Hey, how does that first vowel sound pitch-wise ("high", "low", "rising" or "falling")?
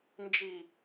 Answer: low